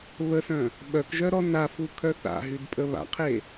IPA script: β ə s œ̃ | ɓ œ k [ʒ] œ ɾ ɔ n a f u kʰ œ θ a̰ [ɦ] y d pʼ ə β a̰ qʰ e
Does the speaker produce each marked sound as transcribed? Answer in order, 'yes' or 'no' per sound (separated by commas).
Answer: yes, yes